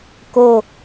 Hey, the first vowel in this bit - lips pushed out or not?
yes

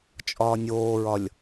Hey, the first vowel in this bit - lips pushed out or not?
yes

